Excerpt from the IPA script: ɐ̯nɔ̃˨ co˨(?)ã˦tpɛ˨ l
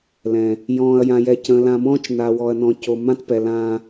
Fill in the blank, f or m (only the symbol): m